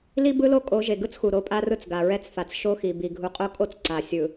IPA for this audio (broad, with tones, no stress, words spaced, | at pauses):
li˦bɯ˦lo˦ kʼo˨˦ʒe˨ɡɯ˦t͡sxu˨ ɾo˨˦pʼa˦rɯ˦t͡s ɡa˨ɹɛ˦t͡sfa˨t͡s ʃo˦xi˨bi˨ ɡʱu˨qʼo˦kʼo˦t͡s ǀa˨sʲɯ˨